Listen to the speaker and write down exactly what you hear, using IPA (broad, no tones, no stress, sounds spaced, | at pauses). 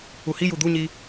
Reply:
u h i j u d̪ u ɲ i